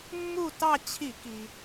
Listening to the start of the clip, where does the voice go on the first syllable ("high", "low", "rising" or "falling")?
falling